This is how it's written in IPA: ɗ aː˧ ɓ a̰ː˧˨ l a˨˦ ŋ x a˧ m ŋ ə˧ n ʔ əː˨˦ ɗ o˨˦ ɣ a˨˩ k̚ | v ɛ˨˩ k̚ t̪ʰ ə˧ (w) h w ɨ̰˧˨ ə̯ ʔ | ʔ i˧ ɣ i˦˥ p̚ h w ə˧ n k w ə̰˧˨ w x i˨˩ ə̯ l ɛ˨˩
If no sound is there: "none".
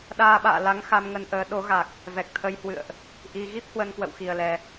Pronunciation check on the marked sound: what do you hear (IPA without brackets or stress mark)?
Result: j